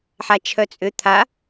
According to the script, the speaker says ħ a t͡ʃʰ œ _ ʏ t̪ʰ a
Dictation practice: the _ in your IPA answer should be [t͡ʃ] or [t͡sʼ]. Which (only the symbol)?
t͡sʼ